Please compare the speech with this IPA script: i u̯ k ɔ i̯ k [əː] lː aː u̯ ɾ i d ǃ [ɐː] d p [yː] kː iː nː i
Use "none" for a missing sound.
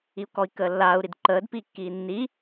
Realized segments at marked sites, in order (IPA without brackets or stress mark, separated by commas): əː, əː, iː